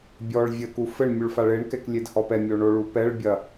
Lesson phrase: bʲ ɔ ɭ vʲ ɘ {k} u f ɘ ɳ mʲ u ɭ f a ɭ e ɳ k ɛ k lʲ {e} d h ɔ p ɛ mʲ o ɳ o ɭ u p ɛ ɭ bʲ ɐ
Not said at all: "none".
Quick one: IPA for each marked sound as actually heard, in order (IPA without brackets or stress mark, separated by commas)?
k, e